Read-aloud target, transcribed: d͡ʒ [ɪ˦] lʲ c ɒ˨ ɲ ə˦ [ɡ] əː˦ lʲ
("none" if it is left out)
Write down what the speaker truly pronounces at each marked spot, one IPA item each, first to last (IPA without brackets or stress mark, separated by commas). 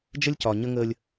ə˦, ŋ